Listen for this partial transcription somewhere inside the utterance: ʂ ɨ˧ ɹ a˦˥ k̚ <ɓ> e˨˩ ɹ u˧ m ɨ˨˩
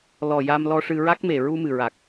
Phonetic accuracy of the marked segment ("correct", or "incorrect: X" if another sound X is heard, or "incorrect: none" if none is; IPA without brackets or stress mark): incorrect: m